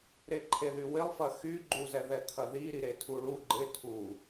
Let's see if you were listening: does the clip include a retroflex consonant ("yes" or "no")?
yes